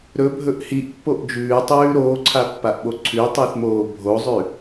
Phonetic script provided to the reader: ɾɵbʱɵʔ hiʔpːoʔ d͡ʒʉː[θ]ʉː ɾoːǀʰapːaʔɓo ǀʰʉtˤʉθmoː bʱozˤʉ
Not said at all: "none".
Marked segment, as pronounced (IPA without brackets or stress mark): tˤ